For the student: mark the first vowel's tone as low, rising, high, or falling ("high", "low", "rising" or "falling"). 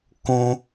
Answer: high